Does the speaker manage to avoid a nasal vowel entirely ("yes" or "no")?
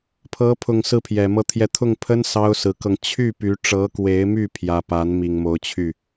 yes